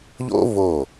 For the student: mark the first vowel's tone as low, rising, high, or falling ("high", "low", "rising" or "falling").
high